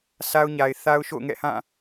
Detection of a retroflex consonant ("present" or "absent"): absent